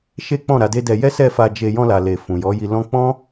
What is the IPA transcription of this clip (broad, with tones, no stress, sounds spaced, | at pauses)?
ʃ e˦ k͡p ɔ̃˦˨ ɾ a˨˦ d e˦ d ɛ˧ j ɛ˦ s ɛ˦˨ f a˧ d͡ʒ e˧ j ɔ̃˧ l a˨ l e˨ f ũ˨ j ɔ˨˦ j i˧ l ɔ̃˦ k͡p ɔ̃˦